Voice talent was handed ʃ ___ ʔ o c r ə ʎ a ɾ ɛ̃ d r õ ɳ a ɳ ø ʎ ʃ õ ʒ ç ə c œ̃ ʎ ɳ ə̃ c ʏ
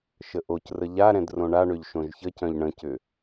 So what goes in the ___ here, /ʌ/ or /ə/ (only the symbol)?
ə